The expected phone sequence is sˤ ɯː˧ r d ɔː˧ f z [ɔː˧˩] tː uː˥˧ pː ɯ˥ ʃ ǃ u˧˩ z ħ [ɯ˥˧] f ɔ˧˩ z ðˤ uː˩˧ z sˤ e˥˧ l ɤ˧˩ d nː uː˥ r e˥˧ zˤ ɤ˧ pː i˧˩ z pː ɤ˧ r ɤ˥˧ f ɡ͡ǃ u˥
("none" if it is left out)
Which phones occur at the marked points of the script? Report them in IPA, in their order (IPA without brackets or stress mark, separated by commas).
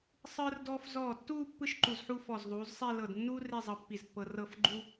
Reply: ɔː˧˩, u˥˧